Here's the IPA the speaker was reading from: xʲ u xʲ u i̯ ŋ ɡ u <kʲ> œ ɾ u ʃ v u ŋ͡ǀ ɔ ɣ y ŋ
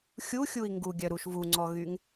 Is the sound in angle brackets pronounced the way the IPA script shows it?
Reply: no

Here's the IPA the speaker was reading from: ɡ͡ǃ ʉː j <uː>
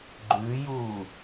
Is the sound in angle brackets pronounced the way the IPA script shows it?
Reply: yes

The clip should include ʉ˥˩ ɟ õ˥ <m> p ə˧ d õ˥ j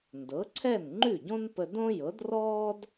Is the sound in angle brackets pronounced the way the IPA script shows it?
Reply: no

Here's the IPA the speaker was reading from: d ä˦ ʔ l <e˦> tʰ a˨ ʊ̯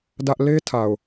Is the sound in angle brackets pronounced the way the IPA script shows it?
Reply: yes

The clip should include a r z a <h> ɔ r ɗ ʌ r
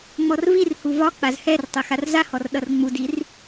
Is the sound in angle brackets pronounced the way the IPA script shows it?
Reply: yes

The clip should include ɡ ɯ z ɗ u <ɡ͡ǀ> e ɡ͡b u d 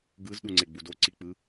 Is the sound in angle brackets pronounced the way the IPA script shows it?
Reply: no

